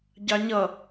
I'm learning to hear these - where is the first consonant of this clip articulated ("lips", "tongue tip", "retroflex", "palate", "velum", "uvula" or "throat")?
palate